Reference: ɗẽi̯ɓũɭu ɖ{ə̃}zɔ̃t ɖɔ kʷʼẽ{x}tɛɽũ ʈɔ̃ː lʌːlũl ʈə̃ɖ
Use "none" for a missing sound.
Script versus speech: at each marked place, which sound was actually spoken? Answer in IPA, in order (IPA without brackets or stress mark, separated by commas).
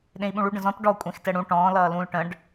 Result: ə̃, x